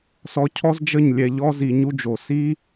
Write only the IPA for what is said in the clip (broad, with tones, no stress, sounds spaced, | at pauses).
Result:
s ɔ˧ cʰ ɔ˦ z d͡ʒ ə˦˨ ɲ lʲ ɛ˧ ʎ ɔ˦ z i˨˦ ɲ u˧ d͡ʒ o˨ s i˦